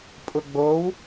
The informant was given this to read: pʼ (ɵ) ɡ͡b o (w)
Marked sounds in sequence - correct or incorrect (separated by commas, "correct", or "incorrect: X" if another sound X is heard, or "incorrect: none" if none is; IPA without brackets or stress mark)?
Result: incorrect: ʊ, correct